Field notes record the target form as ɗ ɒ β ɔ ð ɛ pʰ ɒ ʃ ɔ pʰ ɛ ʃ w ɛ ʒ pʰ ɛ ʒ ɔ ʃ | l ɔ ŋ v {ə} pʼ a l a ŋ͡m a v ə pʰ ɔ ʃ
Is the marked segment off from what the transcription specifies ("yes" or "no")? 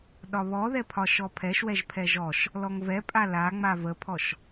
yes